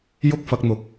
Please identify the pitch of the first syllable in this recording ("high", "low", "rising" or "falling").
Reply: high